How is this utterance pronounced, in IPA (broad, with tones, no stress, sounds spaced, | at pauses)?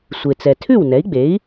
sʷ e˩ t͡s ɛ˩ tʰ ʉ˥˩ w n ɛ˩˥ i̯ ɡ͡b e˩˥ i̯